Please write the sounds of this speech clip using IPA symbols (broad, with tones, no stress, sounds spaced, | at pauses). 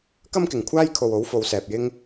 k ɐ˥ m k ɪ˨ ŋ kʷʰ aː˥ j kʰ o˨ w o˨˥ w f o˨˧ w s ɛː˨ p̚ j ɪ˥ ŋ